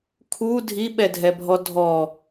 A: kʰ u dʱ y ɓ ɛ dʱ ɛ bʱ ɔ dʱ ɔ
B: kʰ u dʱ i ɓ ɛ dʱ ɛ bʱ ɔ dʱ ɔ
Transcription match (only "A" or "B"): B